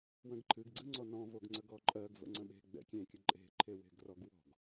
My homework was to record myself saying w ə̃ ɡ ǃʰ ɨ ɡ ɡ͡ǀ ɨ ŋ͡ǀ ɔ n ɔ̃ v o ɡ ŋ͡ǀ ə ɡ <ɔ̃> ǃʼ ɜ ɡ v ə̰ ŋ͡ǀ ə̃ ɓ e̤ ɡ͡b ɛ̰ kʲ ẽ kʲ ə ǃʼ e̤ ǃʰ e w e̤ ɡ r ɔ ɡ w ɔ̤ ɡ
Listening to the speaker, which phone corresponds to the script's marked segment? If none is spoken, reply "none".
ɔ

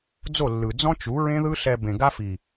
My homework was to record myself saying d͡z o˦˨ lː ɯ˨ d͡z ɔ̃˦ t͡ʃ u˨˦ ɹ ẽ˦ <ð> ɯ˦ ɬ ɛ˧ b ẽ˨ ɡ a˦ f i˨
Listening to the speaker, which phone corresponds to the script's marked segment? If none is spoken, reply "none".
ð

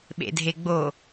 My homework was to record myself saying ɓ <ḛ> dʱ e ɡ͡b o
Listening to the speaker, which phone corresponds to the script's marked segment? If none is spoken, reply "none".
ḛ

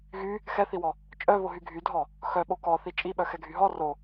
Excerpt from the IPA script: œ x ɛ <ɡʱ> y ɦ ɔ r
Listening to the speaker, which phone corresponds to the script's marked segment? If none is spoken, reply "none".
ɡʱ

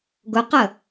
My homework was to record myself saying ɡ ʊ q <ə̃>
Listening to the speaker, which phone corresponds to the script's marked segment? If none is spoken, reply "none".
ə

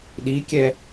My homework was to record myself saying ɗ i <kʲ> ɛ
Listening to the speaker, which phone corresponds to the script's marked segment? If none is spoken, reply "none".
kʲ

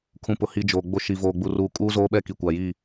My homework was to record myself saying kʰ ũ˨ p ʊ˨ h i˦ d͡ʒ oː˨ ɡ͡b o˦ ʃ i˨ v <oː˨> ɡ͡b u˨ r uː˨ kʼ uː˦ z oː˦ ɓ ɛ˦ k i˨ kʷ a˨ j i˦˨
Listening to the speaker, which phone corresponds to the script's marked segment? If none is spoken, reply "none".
oː˨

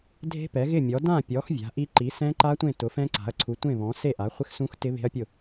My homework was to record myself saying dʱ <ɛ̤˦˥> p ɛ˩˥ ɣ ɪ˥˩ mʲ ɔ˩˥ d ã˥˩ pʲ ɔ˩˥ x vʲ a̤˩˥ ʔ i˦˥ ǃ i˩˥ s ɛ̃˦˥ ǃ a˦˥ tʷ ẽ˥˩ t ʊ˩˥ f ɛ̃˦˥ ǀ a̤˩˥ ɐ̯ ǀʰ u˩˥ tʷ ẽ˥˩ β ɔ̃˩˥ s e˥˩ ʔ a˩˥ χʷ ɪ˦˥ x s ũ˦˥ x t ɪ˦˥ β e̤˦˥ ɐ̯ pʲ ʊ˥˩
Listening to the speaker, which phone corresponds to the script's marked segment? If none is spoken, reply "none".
e̤˦˥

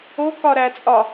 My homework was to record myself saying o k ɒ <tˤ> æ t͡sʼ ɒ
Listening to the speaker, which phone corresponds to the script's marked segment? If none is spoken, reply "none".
ɾ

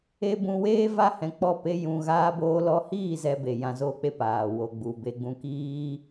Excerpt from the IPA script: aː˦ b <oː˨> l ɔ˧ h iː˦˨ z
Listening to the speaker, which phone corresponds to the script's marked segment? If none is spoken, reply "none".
oː˦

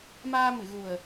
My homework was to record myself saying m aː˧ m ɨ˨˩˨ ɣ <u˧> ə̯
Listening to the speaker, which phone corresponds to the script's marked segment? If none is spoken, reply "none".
u˨˩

